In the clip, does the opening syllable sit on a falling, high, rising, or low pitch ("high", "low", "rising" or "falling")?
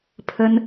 high